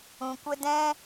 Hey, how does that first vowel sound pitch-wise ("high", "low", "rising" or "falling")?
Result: low